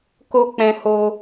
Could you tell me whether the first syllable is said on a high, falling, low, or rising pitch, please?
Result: high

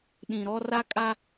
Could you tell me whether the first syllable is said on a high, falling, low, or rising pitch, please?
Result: low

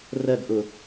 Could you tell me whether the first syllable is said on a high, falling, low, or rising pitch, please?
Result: falling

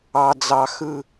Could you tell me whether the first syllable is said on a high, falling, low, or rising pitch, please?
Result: low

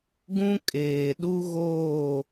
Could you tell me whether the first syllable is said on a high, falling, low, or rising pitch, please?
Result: high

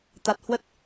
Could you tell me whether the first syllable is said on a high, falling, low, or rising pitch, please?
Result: low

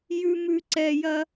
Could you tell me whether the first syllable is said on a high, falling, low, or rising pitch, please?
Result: low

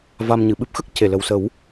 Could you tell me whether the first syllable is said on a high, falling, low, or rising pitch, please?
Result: low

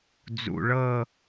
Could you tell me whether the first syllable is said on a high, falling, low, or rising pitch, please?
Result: low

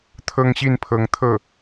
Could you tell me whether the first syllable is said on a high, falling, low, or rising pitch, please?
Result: high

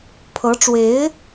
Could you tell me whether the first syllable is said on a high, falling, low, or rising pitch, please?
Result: rising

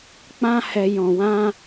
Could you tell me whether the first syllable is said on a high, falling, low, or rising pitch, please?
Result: high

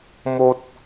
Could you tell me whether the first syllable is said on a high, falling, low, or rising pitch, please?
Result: high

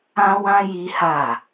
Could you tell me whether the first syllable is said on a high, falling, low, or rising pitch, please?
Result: high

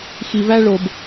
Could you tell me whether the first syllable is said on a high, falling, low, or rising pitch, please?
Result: low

